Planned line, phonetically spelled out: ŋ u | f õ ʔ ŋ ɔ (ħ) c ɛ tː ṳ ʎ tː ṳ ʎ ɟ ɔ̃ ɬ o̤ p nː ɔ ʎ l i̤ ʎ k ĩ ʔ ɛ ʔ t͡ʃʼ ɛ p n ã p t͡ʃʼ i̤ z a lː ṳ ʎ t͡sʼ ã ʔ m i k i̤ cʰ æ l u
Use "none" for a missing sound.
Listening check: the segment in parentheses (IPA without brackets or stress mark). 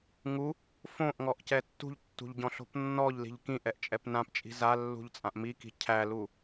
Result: ʔ